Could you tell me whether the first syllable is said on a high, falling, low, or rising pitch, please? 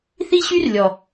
high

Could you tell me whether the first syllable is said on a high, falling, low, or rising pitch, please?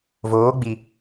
rising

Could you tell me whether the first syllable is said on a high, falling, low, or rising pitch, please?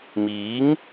rising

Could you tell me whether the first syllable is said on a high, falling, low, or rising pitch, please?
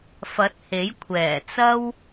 rising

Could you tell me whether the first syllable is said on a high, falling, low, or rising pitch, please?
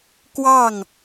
falling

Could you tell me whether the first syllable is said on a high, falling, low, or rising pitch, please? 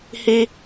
high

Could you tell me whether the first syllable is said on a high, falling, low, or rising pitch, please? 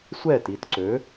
falling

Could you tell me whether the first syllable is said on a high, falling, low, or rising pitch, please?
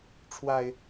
low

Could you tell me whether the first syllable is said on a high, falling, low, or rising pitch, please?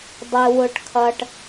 high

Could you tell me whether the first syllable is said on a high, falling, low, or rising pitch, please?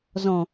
low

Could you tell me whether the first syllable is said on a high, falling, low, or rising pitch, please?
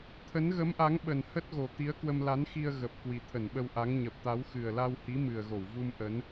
rising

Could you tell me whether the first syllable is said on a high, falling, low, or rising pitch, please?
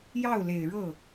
falling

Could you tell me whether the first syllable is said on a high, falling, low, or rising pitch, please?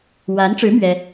rising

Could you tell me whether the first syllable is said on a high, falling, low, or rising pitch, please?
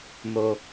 low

